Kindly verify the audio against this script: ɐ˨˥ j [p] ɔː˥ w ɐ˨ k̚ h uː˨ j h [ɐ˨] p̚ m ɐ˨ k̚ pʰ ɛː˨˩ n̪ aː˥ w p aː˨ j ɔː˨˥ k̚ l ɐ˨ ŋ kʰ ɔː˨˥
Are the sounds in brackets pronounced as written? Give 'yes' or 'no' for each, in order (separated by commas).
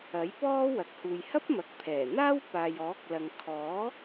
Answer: yes, no